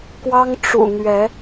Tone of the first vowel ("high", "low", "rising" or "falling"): high